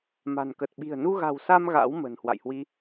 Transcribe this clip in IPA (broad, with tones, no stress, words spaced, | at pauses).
ma̤˨˩nkə˨˩t̚ɓi̤˨˩ə̯ nu˧ɣa̤˨˩wsa˧m ɣa̰˧˥w mə̤˨˩n hwa̰˧˨jhwi˧